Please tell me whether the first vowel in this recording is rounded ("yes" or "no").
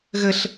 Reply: no